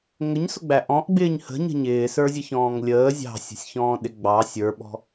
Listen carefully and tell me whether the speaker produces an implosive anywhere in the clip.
yes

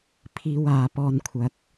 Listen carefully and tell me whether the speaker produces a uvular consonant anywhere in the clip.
no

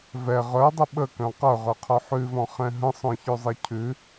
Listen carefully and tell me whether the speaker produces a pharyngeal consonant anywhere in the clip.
yes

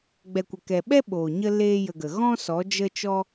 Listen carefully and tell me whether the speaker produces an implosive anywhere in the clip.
yes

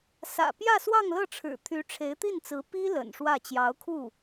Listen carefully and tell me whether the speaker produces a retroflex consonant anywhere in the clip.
yes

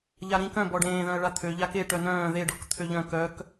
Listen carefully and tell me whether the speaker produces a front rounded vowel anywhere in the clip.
yes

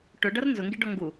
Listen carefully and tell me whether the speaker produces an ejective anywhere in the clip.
no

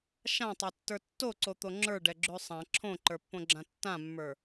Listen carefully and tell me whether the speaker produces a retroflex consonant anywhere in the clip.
yes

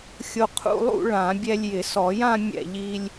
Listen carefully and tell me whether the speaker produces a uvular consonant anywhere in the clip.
yes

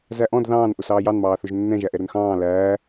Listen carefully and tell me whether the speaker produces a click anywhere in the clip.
no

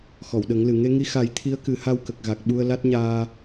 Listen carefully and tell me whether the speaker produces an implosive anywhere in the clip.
yes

